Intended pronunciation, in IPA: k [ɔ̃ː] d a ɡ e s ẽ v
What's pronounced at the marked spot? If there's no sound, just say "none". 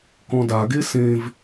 ɔ̃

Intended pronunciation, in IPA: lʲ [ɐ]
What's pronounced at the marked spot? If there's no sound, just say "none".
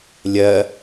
ɐ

